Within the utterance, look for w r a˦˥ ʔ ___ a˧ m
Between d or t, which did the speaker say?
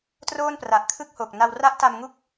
t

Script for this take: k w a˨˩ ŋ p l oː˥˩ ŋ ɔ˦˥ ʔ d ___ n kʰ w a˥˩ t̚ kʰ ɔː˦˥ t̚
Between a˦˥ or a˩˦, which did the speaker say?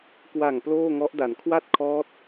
a˩˦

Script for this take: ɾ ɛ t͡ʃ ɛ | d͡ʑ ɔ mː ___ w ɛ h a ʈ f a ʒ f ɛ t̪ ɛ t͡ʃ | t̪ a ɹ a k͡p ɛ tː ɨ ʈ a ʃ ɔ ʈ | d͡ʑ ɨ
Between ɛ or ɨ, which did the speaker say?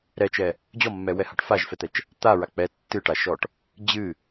ɛ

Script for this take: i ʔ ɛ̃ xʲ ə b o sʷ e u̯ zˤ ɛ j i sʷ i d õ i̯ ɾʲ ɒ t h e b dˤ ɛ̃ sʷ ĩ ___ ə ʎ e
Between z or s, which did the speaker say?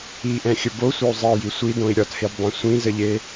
z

